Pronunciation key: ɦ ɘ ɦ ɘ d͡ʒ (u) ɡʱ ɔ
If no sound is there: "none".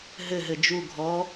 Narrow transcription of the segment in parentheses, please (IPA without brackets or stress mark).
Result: u